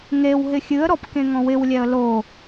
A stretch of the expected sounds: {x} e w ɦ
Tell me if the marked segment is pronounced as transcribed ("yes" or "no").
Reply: no